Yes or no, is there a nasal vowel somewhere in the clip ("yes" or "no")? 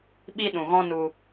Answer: yes